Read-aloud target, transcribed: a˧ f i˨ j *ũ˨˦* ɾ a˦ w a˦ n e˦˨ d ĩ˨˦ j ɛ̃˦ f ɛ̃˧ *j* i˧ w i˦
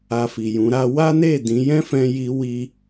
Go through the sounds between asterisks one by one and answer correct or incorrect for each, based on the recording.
correct, correct

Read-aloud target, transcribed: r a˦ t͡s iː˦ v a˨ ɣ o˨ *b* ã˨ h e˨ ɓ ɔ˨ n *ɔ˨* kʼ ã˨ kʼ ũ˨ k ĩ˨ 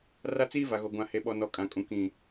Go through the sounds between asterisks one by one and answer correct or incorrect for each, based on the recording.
incorrect, correct

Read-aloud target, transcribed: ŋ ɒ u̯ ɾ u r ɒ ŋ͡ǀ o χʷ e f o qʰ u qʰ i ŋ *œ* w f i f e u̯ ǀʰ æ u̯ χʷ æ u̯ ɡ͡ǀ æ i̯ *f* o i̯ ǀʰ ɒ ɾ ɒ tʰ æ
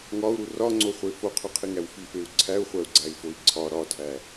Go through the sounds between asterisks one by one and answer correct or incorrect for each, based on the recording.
incorrect, correct

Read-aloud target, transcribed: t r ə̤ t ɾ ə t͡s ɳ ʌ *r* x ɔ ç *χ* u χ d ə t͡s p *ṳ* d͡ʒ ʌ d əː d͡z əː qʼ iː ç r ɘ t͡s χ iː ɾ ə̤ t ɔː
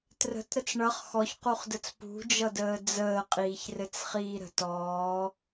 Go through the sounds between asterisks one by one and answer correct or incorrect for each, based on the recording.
incorrect, incorrect, correct

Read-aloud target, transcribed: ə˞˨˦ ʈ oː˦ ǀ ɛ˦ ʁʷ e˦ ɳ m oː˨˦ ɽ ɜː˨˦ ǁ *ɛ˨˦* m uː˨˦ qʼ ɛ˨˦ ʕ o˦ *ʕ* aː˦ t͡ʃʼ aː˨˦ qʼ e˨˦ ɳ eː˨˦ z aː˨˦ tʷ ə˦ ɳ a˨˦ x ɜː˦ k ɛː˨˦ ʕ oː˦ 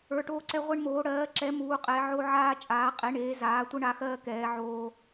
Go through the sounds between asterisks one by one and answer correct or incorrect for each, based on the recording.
correct, correct

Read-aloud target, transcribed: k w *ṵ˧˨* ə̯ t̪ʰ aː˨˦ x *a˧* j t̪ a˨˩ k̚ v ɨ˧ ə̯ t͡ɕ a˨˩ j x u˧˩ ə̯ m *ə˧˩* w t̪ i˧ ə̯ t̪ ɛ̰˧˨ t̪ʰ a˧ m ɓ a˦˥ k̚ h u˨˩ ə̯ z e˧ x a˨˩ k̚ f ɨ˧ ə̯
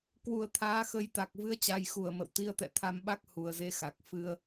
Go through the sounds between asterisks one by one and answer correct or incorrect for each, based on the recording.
incorrect, incorrect, incorrect

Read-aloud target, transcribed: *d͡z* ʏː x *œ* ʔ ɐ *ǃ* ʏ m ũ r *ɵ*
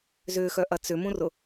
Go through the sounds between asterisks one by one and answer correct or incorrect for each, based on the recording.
incorrect, correct, incorrect, incorrect

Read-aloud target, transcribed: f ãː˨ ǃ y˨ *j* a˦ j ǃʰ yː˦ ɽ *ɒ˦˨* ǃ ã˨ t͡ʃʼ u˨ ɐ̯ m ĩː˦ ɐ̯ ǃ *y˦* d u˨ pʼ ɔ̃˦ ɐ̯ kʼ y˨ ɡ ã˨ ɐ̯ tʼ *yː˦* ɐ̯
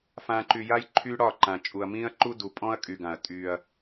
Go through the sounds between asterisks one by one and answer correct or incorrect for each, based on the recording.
correct, incorrect, incorrect, correct

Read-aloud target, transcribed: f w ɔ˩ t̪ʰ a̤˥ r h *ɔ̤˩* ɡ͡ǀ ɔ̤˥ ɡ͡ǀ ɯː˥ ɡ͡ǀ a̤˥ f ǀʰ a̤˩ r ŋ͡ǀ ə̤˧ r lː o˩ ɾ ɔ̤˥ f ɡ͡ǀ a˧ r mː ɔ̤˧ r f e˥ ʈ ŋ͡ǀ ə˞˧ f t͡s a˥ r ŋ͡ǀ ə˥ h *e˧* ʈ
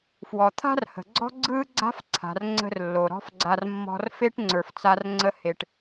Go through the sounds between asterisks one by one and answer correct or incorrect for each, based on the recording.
incorrect, correct

